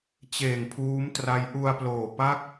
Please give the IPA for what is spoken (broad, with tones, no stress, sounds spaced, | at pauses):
t͡ɕ eː˨˩ ŋ pʰ uː˦˥ m t r a˦˥ j ʔ u˧ a̯ p l oː˨˩ p a˥˩ k̚